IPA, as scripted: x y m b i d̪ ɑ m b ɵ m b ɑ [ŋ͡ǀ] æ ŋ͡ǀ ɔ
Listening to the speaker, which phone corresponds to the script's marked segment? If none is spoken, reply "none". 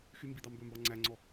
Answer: ŋ͡ǀ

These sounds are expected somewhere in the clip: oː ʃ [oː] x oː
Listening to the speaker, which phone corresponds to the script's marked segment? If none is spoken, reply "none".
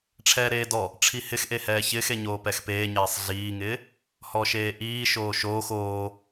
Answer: oː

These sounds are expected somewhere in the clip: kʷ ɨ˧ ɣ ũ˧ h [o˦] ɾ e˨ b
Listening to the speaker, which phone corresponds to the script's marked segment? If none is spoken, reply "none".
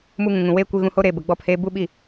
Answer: o˦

